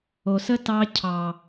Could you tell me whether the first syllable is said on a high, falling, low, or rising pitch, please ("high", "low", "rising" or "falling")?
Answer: low